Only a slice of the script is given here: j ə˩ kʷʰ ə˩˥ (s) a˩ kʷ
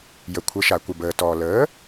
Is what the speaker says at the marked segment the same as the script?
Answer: no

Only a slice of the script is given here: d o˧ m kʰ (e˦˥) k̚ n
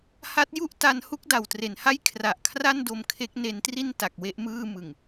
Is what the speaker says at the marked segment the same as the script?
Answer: yes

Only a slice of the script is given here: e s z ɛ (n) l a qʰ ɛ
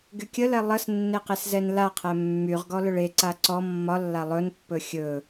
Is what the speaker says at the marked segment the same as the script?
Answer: yes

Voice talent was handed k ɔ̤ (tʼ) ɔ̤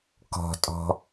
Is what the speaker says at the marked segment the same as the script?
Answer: yes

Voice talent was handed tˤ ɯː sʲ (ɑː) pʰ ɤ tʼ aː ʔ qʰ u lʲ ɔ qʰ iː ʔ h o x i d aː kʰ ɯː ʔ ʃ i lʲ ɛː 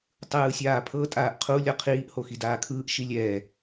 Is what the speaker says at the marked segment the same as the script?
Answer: no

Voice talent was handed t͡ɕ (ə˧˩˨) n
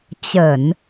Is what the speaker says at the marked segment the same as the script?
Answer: yes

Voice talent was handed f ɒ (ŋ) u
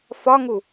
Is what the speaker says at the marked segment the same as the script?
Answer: yes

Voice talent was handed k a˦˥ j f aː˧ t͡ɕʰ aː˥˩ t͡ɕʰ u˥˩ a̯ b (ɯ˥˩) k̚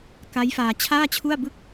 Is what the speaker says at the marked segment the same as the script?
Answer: yes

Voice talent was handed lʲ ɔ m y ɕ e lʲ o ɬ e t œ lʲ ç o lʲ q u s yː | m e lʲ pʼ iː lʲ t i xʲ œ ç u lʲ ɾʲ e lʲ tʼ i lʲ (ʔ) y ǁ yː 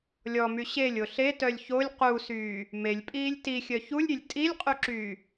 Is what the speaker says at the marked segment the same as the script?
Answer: no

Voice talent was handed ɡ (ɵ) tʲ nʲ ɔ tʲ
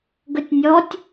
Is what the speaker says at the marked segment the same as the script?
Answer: yes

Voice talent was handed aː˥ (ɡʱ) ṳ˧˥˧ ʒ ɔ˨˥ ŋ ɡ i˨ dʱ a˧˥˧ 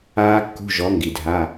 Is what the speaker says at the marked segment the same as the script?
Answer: no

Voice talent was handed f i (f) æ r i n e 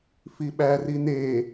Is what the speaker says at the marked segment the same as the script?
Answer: no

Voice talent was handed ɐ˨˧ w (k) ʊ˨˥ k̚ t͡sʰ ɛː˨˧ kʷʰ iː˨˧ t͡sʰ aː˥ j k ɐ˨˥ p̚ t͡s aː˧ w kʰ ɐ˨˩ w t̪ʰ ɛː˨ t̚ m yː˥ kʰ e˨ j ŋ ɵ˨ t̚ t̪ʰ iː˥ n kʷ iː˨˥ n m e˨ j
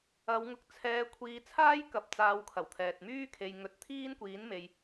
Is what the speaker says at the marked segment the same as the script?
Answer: no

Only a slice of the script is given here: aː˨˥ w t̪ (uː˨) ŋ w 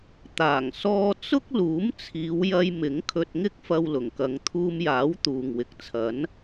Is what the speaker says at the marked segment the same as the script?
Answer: yes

